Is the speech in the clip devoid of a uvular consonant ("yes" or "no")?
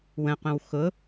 no